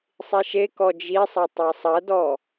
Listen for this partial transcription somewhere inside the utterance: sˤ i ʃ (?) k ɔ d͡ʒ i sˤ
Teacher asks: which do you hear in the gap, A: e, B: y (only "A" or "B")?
A